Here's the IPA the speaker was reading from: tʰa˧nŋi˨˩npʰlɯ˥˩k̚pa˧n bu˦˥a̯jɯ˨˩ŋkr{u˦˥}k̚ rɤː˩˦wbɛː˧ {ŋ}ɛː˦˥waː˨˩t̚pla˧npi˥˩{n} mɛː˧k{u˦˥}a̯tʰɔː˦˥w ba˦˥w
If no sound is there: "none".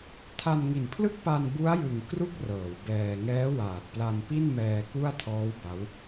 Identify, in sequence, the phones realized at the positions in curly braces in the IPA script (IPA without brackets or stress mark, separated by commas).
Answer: u˦˥, ŋ, n, u˥˩